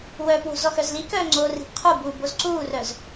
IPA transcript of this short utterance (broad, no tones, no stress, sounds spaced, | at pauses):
w œː p w o̤ z ɔ x œ z l i k œː ŋ͡ǀ oː r i̤ p qʰ u b uː b o z ǀ uː r œ z